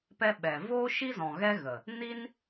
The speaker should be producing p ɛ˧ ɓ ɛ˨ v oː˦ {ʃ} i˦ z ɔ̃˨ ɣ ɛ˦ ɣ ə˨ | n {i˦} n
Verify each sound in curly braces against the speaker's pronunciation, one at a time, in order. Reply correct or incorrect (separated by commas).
correct, correct